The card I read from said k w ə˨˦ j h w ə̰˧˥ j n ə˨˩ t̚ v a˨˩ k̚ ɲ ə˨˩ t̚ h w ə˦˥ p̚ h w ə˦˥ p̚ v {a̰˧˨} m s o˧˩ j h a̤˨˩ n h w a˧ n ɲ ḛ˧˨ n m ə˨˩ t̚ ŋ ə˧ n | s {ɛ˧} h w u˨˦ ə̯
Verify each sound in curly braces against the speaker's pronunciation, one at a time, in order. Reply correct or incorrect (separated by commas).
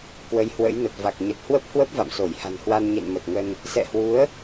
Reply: correct, incorrect